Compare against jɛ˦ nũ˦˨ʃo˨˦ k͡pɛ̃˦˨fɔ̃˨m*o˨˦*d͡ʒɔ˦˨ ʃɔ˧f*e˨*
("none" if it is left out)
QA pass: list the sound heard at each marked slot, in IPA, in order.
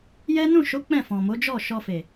o˨˦, e˨

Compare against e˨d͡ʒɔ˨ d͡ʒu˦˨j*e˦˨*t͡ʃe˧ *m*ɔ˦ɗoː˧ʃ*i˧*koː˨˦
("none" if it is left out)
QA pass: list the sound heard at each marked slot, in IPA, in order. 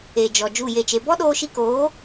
e˦˨, b, i˧

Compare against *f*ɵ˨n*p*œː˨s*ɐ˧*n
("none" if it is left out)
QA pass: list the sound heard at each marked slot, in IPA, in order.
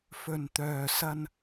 f, t̪, ɐ˧

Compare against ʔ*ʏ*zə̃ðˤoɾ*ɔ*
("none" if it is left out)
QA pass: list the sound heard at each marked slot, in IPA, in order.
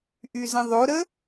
y, ə

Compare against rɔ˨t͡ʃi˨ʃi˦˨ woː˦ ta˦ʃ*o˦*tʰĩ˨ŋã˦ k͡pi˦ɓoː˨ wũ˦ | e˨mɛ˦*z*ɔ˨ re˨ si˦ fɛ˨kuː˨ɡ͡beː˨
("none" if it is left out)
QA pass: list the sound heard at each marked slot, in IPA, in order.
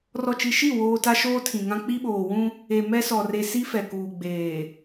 oː˦, s

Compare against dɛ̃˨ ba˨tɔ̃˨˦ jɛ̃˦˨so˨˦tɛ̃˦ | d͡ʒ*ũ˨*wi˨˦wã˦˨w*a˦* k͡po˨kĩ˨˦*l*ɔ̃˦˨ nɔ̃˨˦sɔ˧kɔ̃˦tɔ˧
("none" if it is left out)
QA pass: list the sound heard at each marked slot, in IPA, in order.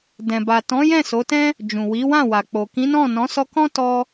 ũ˨, a˨, n

